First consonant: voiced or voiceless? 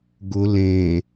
voiced